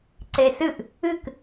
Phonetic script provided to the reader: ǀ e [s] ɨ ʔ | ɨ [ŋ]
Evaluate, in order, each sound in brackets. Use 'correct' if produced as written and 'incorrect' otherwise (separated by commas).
correct, incorrect